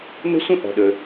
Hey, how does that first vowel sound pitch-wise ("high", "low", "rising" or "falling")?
high